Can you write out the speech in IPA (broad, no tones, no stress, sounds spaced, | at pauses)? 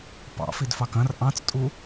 p ɑ̰ f i d f ɑ k ɐ̃ r ʔ ɑ̃ t͡s tʼ u